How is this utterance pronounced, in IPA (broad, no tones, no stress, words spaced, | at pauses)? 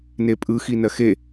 nepʼɯ xinɜxe